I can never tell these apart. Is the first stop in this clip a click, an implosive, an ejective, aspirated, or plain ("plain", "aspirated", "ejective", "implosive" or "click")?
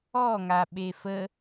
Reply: implosive